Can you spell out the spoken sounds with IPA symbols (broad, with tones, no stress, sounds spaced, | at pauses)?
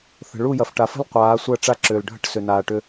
θ ə̤˨ ɭ u˦˨ j ɐ˨ f ʈ a˨ f ə̤˦ l qʷ aː˨˦ sʷ ɐ˦˨ ʈ͡ʂ a˦ ǁ ʏː˨ l ɖʱ ə̤˦ ʈ s ʏ˨ n aː˨ ʈ ʏ˦